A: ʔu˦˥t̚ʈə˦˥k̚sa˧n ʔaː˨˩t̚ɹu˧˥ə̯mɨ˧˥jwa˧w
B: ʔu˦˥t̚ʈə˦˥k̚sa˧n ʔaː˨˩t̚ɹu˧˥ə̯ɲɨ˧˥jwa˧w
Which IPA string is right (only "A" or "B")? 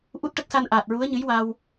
B